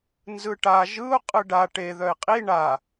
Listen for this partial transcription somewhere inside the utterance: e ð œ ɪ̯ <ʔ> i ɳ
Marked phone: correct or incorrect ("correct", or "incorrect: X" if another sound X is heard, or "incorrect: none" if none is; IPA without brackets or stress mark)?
incorrect: qʼ